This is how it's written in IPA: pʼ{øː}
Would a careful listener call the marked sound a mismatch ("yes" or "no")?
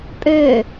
no